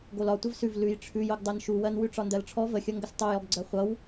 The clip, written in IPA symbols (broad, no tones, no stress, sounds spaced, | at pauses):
ɡ o l ɒ tʷ ə v s ʉ v l ʉ j ʈ͡ʂʰ ʉ j o ɡ dˤ ɜ n ʃ u w ɜ n w ʉ ʈ͡ʂ ɒ n d ɜ l ʈ͡ʂʰ ɔ v ə xʲ ʌ ŋ ɡ ə s tˤ o j ɔ ɡ ɡ͡ǀ ɜ χʷ ʌ w